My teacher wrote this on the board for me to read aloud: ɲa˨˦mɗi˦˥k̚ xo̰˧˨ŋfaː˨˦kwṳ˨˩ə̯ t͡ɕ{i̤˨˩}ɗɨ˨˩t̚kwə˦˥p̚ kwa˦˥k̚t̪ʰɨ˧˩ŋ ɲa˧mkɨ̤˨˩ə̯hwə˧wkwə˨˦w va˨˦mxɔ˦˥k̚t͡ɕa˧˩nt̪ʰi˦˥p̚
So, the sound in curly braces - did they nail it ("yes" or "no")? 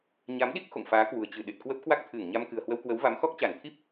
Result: no